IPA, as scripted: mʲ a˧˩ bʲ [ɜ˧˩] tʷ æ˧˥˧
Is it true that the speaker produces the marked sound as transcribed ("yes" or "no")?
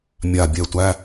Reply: no